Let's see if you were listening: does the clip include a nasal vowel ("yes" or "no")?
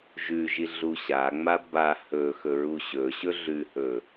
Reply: no